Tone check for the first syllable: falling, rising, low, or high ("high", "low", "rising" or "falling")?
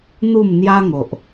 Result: falling